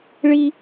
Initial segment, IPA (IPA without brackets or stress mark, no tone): ɭ